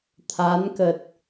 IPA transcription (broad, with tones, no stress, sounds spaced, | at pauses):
t̪ʰ a˨˦ n k ə˨˩ t̚